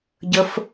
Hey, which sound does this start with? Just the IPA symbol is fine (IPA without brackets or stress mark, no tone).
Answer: ɟ